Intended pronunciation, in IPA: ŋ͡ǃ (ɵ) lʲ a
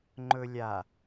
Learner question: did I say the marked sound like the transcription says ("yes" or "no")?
yes